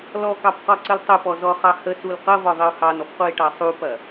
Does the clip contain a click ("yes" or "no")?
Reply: yes